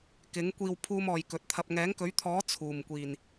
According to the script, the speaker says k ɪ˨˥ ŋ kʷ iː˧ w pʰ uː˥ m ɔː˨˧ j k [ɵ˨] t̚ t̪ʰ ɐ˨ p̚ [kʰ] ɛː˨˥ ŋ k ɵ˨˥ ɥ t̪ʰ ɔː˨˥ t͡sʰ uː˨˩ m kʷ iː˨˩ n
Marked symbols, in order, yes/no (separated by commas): no, no